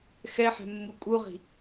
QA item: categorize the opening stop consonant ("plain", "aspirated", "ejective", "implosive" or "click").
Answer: ejective